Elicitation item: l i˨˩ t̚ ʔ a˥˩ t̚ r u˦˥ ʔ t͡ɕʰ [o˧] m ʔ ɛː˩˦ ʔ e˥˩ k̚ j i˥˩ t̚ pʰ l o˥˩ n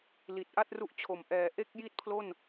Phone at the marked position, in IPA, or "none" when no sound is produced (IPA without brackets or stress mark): o˨˩